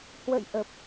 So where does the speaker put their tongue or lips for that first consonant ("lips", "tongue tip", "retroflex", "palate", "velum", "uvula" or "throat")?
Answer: throat